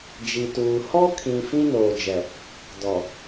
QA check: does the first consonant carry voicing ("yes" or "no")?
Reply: yes